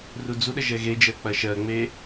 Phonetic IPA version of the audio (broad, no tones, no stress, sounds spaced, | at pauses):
r u d͡z u ɗ ə ʒ ɛ ɣ e d͡ʒ ɜ k͡p ɐ ʃ ɜ ŋ͡m e